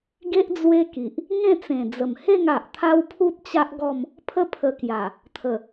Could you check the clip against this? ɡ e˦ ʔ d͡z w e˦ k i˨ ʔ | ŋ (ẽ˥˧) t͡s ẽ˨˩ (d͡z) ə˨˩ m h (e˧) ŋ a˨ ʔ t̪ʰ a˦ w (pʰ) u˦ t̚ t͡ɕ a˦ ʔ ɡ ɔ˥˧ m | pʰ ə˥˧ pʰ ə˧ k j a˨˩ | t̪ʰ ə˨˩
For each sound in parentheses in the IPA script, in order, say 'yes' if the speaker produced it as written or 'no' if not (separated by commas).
yes, yes, no, yes